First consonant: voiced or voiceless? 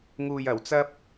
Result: voiced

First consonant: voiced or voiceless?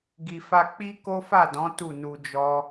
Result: voiced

